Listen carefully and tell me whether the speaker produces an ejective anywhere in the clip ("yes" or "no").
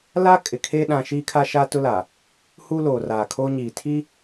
yes